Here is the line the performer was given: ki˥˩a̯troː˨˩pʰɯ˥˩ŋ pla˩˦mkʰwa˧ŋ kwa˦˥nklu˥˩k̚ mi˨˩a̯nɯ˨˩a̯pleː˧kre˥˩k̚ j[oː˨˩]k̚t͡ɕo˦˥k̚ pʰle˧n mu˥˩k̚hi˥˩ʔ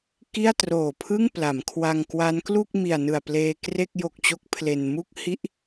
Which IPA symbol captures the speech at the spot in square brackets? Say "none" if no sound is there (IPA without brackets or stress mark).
o˨˩